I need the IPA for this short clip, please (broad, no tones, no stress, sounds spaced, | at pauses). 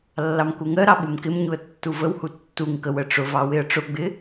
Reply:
lː ɑ m k u ŋ ɜ ɾ ɑ ɓ u m k ɪ m ɲ u ə̯ tː u v ə w h u tː u ŋ k ə w ə ʈ͡ʂ ʊ v ɑ w ɪ ə̯ ʈ͡ʂ ʊ ɡ͡b ɪ